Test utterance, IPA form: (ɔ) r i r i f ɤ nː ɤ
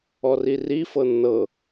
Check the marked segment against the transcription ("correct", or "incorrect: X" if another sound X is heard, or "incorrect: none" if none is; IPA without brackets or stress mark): correct